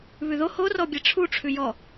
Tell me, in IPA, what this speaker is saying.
β ʉ ð o h o r ɔ bʲ ɛ ʈ͡ʂʰ u ʈ͡ʂʰ ʉ j ɔ

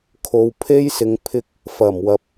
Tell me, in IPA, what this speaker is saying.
kʰ o˨˧ w pʰ e˥ j s ɪ˨˧ ŋ pʰ ɪ˧ k̚ | f ɐ˨˩ m w ɐ˨ p̚

